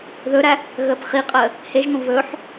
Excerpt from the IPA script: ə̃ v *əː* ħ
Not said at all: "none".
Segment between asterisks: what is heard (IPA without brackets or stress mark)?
ɵː